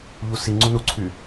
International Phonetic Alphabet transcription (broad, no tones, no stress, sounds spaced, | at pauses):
ʎ u s i ŋ͡ǀ u n u ǀʰ y